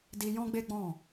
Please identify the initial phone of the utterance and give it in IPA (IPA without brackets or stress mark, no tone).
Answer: d